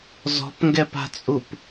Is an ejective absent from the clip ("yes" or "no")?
no